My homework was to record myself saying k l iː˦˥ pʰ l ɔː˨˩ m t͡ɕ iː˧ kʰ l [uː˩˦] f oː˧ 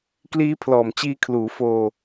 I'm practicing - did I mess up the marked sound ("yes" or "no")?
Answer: no